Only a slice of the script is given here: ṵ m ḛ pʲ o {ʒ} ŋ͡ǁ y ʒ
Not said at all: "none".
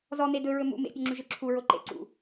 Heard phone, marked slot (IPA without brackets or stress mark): none